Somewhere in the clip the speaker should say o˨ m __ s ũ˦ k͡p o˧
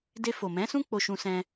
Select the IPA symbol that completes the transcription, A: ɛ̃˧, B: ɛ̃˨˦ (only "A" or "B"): B